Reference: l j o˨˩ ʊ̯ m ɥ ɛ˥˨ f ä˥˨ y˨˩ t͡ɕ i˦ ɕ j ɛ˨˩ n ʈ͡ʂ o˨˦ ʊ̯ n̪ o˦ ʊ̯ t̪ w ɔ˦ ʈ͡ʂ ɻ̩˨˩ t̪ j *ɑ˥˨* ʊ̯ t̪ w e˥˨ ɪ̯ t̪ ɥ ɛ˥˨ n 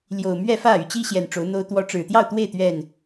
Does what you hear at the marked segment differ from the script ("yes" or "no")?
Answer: no